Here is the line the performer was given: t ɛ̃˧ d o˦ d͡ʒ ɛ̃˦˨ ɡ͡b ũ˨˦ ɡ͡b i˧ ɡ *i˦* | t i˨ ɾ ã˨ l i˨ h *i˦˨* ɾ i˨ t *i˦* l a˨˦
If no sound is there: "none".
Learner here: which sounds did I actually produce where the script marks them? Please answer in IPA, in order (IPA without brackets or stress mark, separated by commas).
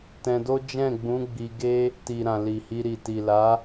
e˦, i˧, i˨